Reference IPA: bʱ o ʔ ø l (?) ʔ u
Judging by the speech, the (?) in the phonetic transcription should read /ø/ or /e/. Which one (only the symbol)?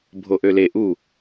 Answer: e